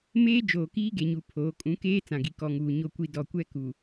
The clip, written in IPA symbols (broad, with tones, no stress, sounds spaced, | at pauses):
m eː˦ d͡ʒ oː˨ k iː˦ ɡ e˨ ɲ u˨ pʰ oː˨˦ kʼ ũ˨˦ k eː˦ t͡s ã˨ ɡ i˨ k ɔ˨ ŋ uː˨ ɲ o˨ kʷ i˨ d ɔ˨ kʷ ɛ˦ k u˨